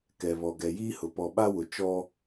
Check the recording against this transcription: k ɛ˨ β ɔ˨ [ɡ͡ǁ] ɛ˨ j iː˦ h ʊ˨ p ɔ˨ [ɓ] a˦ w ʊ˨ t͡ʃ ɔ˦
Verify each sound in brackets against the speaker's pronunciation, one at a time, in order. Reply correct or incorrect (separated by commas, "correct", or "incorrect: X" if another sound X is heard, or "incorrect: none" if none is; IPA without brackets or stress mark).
incorrect: ɡ, correct